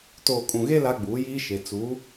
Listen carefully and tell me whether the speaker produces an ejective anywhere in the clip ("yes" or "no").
yes